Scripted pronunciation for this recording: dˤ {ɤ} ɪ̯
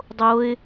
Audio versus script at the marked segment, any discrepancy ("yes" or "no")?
yes